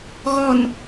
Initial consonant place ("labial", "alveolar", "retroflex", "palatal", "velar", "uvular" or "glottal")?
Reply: velar